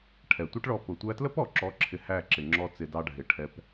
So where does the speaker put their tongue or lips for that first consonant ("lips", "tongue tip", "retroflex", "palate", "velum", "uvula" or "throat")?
retroflex